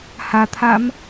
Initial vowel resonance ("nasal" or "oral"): oral